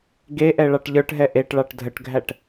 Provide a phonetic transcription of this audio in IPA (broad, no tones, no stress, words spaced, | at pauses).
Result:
ɡeʔɛ ɭɑʈʎə˞ʈɦɛ ʔeʈɭɑʈ dʱəʈɡʱæʈ